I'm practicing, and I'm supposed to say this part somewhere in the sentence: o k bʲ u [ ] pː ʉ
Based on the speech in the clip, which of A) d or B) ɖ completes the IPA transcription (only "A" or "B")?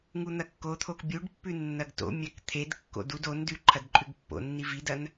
B